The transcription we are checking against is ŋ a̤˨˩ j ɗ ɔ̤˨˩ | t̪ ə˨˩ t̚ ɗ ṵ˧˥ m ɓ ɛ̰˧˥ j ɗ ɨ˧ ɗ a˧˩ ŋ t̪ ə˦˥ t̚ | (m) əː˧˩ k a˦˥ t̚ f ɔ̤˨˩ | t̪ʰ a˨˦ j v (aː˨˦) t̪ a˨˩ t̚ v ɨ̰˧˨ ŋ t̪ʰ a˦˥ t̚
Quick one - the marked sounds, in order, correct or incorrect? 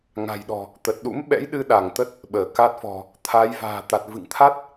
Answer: incorrect: ɓ, incorrect: a̤ː˨˩

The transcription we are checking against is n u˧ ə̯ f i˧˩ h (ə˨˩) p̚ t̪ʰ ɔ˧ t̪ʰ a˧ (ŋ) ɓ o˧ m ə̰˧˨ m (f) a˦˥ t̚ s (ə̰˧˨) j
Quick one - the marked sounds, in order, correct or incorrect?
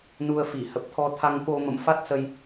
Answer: correct, correct, correct, incorrect: ə˧

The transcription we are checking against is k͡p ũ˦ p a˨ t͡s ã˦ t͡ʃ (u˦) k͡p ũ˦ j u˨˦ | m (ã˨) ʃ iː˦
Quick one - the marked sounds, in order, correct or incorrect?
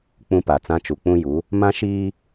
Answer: incorrect: u˨, incorrect: ã˦

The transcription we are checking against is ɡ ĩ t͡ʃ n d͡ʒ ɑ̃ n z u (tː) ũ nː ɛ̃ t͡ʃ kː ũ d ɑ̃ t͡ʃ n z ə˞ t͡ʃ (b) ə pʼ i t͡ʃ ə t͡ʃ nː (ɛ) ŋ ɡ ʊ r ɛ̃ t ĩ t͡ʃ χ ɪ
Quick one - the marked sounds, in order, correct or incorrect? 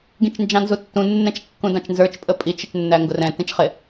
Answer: correct, incorrect: pʼ, incorrect: æ

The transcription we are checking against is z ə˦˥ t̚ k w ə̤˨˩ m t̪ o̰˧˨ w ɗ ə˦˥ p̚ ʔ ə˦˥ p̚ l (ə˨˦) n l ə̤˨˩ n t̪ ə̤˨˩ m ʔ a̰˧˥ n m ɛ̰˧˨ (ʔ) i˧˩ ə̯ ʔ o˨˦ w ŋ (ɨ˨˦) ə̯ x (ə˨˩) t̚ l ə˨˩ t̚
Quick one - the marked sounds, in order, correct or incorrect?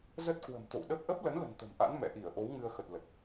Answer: correct, correct, incorrect: ɨ˧, correct

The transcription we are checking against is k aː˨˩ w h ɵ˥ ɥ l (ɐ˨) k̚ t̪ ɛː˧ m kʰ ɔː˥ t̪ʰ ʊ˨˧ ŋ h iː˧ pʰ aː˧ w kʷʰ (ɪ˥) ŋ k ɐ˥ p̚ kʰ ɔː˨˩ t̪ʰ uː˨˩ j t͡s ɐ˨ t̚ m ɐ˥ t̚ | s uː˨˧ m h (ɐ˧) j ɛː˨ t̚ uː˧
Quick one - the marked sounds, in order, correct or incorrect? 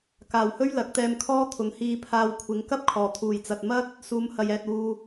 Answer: incorrect: ɐ˨˥, incorrect: ɪ˨˧, incorrect: ɐ˨

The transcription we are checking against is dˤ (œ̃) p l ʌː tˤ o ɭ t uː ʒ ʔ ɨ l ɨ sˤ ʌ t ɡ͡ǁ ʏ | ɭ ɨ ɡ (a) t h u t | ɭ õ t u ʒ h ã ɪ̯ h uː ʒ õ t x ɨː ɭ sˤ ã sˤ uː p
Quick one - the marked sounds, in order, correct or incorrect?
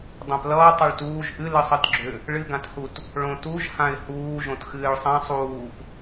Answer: correct, incorrect: ã

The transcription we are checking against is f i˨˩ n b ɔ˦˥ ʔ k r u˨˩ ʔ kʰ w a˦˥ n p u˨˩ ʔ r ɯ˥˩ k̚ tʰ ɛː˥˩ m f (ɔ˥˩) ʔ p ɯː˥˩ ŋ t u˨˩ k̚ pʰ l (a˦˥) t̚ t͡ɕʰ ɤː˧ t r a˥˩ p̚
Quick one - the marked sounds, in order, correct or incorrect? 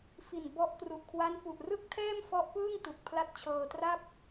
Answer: incorrect: ɔ˦˥, correct

